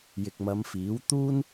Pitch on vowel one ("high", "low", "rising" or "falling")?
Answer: low